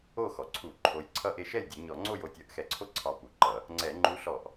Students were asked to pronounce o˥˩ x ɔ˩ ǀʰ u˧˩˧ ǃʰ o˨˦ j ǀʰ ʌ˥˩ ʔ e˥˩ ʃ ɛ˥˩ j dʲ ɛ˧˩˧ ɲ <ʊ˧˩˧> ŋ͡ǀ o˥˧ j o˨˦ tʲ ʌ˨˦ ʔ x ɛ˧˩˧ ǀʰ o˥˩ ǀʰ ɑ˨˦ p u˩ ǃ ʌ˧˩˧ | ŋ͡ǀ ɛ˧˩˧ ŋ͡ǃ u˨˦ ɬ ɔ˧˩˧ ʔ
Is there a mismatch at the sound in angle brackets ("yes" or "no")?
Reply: yes